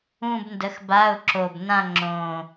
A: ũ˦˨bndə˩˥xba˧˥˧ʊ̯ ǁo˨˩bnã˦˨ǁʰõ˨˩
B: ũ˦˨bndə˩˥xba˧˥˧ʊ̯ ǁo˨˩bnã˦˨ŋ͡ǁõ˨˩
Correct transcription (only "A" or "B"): B